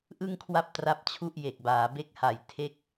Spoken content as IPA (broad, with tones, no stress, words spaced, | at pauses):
ʔɯ˥˩ŋkʰwa˥˩p̚tra˦˥p̚t͡ɕʰu˥˩ʔ je˨˩k̚baː˩˦be˦˥k̚ ha˨˩j tʰe˥˩k̚